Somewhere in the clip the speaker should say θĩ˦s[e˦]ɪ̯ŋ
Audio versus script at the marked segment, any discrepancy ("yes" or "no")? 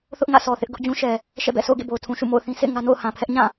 yes